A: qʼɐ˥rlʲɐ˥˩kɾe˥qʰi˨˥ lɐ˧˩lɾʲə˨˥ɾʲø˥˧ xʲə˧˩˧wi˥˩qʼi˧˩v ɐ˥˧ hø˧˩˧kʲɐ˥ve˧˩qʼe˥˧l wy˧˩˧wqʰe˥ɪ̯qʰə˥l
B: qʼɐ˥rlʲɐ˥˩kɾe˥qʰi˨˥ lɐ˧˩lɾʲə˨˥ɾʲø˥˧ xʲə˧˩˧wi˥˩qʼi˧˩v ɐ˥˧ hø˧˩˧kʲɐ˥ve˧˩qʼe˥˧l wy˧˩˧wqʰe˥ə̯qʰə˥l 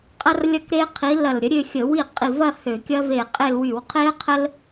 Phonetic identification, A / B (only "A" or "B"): B